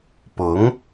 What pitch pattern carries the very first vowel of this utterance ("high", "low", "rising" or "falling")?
rising